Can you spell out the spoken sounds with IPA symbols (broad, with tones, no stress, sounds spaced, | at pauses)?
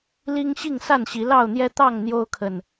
l i˦ ŋ ɕ i˥˨ ŋ s a˥˨ n ɕ i˨˦ l ɑ˥˨ ʊ̯ n̪ j ɛ˦ t̪ ɑ˥˨ ŋ n̪ j o˦ ʊ̯ kʰ ə˨ n